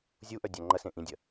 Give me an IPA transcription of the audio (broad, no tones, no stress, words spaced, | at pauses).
zʲuʔœdʲa ŋ͡ǃɐsẽ ʔĩdʲɐ